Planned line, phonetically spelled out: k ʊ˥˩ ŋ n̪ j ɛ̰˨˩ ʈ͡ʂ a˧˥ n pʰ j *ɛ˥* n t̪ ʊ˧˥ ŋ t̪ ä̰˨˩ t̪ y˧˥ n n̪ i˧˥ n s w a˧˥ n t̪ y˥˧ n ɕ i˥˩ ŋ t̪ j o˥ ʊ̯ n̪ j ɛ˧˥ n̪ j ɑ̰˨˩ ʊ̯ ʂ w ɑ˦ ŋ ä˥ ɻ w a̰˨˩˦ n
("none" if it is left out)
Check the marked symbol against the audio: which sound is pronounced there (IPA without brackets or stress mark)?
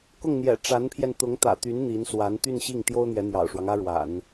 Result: ɛ˧